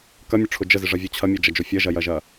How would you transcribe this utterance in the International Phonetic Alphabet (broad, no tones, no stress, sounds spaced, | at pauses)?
k ɐ mʲ ʊ ʈ͡ʂʰ ʊ d͡ʒ ə z ɪ ʐ ɐ vʲ o t͡ɕʰ ɐ mʲ ɛ d͡ʒ ɐ d͡ʒ o fʲ ɐ ʒ ɐ j ɐ ʒ ɐ